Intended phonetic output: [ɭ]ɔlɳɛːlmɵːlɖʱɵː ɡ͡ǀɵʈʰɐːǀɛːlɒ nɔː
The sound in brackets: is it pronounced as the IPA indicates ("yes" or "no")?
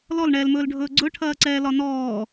no